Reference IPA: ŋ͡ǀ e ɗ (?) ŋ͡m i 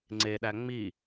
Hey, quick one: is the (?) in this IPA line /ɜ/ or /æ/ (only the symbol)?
æ